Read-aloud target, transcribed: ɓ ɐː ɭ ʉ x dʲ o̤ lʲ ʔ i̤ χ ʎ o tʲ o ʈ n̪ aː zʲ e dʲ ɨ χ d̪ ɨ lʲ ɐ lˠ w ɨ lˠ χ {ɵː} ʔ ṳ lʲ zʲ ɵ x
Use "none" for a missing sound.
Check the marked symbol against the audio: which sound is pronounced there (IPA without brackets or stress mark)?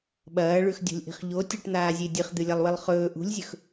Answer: ɵː